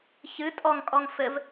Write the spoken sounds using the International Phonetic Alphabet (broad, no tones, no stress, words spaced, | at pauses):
çɨ tʼɔŋkʼɔŋ fɘv